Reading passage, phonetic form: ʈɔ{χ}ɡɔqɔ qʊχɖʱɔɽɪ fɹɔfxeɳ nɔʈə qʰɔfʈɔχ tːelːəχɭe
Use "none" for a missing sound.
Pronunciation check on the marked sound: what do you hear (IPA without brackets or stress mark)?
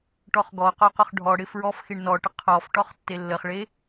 χ